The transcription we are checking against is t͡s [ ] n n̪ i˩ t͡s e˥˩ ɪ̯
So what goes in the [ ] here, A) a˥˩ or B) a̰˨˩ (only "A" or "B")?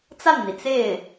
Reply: A